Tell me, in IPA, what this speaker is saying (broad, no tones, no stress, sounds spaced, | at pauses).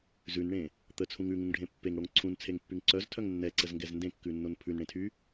z ʉ n ɳ ẽ | t̪ ə t͡sʰ ũ ŋ ʉ ŋ ũ ŋ ɖʱ ẽ pː e ŋ ɽ o ŋ ǀʰ ũ n t͡sʰ e ŋ pː y ŋ ǀ œ z tʰ œ ŋ nː ɛ ǀ ə z ŋ ɡ ɛ z n d ẽ kː ʉ nː o n pʰ ʉ n ɽ ẽ tʰ y